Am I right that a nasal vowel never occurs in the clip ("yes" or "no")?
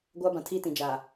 no